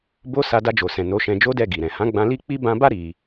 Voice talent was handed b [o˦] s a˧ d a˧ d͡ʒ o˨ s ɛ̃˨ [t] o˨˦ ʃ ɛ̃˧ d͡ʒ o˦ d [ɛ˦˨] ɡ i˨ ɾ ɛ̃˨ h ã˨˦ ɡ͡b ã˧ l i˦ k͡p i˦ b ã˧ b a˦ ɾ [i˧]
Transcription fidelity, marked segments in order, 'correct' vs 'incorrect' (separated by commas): correct, incorrect, correct, correct